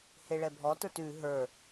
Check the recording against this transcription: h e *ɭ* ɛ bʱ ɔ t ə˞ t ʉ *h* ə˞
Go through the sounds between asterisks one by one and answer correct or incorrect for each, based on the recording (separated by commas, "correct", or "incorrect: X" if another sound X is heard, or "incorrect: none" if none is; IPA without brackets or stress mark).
correct, incorrect: ɦ